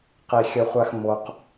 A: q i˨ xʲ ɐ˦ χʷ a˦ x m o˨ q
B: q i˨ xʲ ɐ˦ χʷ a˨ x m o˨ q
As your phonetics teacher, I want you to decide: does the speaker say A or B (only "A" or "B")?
A